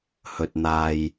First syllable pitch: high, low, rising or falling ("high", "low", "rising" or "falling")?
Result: low